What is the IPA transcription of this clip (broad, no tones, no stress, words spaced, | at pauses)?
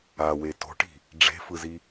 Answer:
awe to̤ʈi̤ | ɖ͡ʐe̤fɯzi